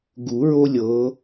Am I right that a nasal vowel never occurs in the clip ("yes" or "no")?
yes